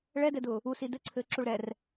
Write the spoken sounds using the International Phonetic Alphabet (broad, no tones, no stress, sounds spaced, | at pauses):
ɭ ɛ d ɛ d ʊː | u s i d ɘ ǀʰ ɘː ǁ u ɭ ɾ ɛ r